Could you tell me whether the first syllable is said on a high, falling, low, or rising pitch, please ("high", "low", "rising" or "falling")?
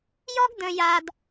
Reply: high